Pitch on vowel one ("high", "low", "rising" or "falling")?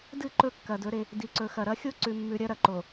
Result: falling